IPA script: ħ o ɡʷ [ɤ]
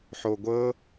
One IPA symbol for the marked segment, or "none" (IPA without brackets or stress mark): ɤ